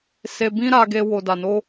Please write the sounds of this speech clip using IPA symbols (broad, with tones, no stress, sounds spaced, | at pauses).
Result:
s e˧ b ĩ˦ ɾ a˧ ɡ e˧ w o˨ d a˨ n o˧